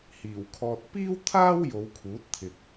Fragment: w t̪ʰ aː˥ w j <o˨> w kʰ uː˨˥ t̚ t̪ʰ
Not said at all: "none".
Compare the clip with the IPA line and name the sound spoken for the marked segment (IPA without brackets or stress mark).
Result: o˨˧